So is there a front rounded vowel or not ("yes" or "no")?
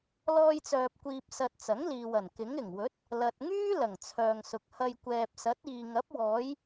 yes